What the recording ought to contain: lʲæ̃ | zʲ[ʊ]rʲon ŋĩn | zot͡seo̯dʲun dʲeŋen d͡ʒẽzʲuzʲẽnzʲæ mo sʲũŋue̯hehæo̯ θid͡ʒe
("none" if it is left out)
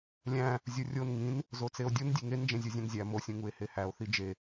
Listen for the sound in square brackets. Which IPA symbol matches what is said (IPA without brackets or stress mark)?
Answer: u